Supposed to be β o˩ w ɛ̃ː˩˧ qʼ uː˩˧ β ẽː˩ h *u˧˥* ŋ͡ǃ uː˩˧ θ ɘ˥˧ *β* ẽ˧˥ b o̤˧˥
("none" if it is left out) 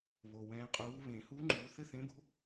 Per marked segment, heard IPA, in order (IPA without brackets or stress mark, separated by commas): u˧˥, θ